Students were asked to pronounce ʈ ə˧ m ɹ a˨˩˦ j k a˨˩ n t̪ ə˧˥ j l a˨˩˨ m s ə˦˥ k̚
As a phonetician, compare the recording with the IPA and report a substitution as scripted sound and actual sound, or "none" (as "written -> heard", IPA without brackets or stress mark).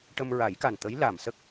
none